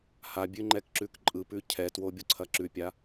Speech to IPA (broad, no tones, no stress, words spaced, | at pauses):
habʲʉ ŋ͡ǃɛkǁʉkǃʼɯpʉ cʰɛtwo bʲoǀʰɐǁʉpʲa